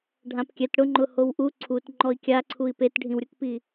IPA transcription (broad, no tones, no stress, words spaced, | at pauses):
ɖʱãpkʲɛt ɽʊŋ͡ǃʊ howʔu ǀʰut ŋ͡ǃɔi̯kʲaǀʰui̯ petɖʱĩwɾʲʊkpi